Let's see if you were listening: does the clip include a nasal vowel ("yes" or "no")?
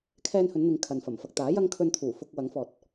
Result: no